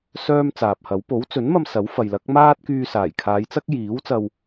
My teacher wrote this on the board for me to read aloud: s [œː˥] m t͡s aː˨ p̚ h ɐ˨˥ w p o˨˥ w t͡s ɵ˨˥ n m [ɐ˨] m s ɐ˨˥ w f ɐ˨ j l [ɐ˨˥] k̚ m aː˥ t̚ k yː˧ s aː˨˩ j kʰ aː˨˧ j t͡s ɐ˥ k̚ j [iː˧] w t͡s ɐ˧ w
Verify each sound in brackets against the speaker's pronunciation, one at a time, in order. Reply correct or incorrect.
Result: correct, incorrect: ɐ˧, correct, incorrect: iː˨˥

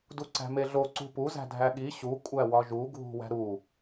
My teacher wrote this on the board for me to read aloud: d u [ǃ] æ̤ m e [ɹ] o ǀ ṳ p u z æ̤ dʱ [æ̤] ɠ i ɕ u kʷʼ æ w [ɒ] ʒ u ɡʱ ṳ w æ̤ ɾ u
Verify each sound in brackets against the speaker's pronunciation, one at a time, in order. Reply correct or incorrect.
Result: incorrect: ǀ, incorrect: ɮ, incorrect: æ, correct

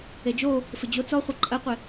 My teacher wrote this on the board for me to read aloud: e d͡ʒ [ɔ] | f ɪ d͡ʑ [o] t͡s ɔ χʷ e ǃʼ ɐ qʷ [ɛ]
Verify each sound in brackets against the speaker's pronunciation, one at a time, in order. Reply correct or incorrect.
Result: incorrect: o, correct, incorrect: ɪ

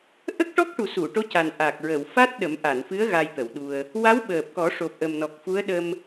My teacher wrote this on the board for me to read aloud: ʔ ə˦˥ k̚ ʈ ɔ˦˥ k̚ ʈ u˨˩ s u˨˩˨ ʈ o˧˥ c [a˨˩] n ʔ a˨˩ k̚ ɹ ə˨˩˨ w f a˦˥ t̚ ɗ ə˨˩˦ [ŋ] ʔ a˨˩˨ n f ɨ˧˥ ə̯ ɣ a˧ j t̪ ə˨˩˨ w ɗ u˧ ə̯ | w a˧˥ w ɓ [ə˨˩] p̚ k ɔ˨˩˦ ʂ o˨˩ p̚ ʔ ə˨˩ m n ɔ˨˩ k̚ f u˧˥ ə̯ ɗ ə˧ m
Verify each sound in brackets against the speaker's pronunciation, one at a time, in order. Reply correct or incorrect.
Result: correct, incorrect: m, incorrect: əː˨˩

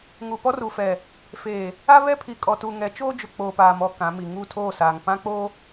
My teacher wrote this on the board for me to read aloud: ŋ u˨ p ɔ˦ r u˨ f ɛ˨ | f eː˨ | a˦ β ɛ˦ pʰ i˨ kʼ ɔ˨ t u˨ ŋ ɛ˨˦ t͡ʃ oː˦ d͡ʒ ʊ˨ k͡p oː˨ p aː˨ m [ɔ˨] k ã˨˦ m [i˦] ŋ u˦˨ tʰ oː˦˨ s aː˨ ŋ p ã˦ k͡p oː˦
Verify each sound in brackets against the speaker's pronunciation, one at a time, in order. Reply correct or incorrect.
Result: correct, incorrect: i˨

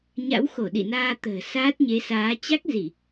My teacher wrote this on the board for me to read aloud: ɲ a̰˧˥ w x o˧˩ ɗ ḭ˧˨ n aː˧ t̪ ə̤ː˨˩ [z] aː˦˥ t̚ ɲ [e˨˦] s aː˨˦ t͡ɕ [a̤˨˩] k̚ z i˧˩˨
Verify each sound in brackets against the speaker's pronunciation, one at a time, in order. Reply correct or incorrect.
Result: incorrect: s, correct, incorrect: a˦˥

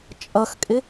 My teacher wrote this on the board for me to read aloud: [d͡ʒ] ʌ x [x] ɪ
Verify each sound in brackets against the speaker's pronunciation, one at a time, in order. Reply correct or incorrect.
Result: incorrect: t͡ʃʼ, incorrect: kʼ

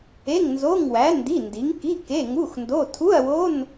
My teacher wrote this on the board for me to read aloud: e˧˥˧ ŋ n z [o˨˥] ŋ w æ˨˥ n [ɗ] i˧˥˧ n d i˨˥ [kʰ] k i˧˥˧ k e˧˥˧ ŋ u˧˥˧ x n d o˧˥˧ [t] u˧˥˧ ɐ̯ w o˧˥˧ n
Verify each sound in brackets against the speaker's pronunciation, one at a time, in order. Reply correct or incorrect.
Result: incorrect: o˧˥˧, incorrect: d, incorrect: ŋ, incorrect: tʰ

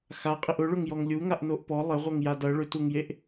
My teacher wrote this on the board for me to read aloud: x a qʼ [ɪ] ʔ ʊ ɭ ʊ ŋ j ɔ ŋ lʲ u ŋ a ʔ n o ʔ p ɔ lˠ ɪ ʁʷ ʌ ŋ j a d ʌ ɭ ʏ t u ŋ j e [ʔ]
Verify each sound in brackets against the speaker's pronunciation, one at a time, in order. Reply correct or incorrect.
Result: correct, correct

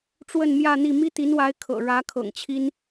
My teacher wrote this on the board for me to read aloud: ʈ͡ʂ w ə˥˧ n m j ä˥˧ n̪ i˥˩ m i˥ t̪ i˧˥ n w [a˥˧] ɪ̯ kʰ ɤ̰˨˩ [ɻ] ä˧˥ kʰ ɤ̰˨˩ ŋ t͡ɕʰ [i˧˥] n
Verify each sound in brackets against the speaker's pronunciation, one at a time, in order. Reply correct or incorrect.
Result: incorrect: a˧˥, correct, incorrect: i˥

